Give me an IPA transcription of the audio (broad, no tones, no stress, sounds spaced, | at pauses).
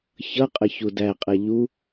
ç ʌ qʼ ə ç u d æ qʼ ɛ ʎ u